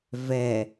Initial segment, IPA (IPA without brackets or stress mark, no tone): v